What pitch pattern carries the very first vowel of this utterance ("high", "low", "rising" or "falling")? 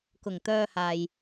low